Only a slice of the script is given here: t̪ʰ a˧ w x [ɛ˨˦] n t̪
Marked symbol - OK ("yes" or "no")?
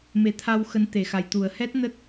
no